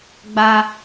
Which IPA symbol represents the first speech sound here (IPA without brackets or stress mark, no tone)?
ɡ͡b